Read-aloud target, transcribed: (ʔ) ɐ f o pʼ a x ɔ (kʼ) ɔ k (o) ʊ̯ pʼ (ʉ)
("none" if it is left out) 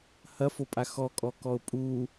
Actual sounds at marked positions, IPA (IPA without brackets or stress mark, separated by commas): h, kʼ, ɔ, u